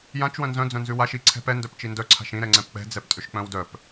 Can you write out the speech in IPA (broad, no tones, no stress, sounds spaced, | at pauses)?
j ã t͡ʃ w œ̃ n z œ̃ d͡z œ̃ n z ʉ w a ʃ i ǀʰ ɛ̤ p ɛ n d œ p t͡ʃ i n d œ ǀʰ a̤ ʃ ĩ ɾ ɛ ŋ͡ǀ ɛ̃ p k͡p ɛ̤ d͡z ɛ p tʼ ʏ ʃ k͡p œ̃ w d œ p